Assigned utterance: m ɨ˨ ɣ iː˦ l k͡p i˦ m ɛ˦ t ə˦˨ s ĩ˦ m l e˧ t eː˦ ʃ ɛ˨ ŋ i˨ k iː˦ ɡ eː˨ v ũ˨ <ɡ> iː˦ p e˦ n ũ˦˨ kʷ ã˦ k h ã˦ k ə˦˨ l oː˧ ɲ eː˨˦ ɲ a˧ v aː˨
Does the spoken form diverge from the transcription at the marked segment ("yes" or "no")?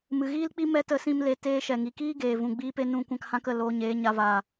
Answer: yes